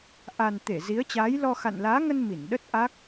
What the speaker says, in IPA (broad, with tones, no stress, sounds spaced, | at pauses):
ʔ a˨˩ n t̪ e˧˩ z i˨˦ ə̯ t͡ɕ aː˨˦ j l ɔ˧ x a̰˧˨ n l aː˨˦ ŋ ə˧ n m i˧˩ n ɗ ə˦˥ t̚ ʔ a˦˥ k̚